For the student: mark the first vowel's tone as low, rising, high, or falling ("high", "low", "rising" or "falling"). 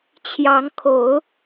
rising